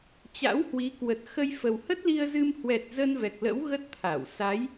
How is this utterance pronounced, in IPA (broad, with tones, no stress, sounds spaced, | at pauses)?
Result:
t͡ɕ a̰˧˥ w h w i˨˦ k w ə˨˩ t̚ x ə˧ j f ə˨˩ w h ə˦˥ t̚ l i˧ ə̯ z ɨ˧ m h w ɛ˨˩ t̚ z ə˧ n v ɛ˨˩ k̚ l ə̰˧˥ w ɣ ə˦˥ t̚ t̪ʰ a˧˩ w s a˨˦ j